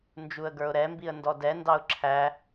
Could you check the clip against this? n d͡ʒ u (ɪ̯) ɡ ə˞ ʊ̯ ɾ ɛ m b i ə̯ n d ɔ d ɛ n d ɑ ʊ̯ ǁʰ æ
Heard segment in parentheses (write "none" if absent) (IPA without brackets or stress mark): ə̯